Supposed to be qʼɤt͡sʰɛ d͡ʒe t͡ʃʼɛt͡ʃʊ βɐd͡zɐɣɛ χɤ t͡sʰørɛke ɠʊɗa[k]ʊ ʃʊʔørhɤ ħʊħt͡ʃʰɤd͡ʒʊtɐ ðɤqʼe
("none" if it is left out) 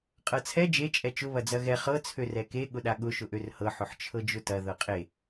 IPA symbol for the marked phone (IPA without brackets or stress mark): ɠ